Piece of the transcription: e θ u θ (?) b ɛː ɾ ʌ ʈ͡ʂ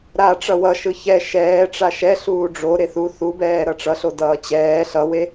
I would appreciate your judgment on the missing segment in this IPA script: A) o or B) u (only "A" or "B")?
B